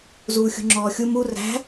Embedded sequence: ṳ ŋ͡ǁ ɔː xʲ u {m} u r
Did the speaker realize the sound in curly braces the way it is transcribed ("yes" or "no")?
yes